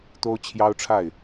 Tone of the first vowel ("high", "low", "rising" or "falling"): high